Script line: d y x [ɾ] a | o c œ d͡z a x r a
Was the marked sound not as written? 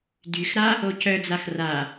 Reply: no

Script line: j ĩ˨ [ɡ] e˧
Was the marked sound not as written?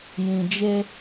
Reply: yes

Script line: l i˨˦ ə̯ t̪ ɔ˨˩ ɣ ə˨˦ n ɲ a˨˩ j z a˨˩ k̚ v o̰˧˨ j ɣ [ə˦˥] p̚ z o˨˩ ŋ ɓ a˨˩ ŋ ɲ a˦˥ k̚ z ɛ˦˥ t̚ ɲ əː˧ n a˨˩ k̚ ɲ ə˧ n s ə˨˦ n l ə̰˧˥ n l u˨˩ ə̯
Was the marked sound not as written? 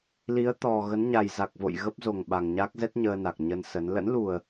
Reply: no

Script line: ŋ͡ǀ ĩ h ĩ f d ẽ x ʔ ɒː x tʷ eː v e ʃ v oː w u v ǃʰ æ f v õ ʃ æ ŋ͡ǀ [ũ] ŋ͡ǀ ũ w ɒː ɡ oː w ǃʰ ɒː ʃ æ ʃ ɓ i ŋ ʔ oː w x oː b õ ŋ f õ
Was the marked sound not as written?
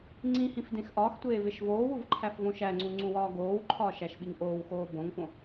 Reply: no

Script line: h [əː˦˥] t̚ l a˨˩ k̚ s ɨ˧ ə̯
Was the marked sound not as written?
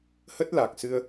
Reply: yes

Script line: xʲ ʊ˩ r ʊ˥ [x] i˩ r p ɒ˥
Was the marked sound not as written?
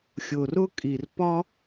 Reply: yes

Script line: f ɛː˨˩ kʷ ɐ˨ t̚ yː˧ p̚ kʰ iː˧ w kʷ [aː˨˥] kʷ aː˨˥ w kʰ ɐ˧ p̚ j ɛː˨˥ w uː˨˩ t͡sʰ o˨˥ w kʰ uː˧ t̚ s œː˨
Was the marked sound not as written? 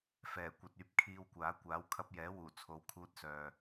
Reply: no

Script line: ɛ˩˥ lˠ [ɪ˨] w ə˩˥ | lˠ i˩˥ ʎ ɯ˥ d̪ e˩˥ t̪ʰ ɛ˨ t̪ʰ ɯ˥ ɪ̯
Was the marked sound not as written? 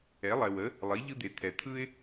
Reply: yes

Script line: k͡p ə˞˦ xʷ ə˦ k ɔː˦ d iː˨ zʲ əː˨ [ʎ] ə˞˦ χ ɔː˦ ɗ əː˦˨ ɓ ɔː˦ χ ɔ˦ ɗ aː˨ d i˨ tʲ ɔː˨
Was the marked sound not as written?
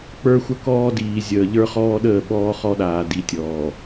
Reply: no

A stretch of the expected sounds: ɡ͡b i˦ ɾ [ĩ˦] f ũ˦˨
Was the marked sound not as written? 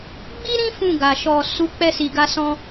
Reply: no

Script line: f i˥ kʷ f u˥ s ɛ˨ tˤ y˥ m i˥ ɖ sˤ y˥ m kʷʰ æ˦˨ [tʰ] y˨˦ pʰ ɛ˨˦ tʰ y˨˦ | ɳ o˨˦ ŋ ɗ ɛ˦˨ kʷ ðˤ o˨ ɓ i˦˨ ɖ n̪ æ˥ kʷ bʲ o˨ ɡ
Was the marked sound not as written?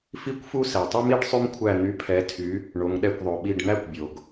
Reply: yes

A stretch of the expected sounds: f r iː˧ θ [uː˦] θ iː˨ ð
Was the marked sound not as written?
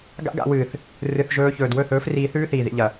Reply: yes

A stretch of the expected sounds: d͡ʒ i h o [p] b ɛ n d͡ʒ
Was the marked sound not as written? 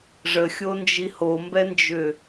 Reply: yes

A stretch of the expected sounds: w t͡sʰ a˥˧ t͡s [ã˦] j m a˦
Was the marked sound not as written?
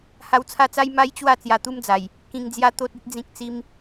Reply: yes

